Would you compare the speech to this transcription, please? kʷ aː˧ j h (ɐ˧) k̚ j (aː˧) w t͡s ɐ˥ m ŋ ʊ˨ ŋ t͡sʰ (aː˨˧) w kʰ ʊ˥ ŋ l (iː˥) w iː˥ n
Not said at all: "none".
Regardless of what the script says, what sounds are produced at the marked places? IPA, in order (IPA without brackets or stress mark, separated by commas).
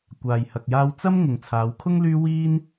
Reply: ɐ˧, aː˥, aː˨˧, yː˥